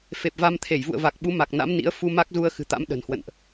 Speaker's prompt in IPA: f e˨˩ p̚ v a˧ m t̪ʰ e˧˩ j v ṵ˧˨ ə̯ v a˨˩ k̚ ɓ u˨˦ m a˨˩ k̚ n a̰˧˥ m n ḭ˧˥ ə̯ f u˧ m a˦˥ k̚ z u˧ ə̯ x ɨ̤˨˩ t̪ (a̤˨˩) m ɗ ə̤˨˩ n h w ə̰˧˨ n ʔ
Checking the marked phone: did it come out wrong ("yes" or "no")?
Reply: yes